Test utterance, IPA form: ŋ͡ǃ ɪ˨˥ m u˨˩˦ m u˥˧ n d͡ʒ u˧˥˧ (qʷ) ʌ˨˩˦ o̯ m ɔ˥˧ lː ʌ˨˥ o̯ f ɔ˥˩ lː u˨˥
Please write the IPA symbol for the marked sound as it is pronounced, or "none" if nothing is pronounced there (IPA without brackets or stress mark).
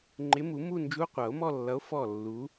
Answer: qʷ